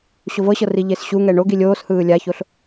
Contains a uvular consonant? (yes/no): no